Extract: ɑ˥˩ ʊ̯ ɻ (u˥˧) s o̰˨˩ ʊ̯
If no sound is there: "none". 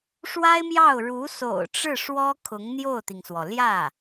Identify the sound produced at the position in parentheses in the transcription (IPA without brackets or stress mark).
u˧˥